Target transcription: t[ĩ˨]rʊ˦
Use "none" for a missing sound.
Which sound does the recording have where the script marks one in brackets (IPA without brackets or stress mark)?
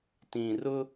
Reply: ĩ˨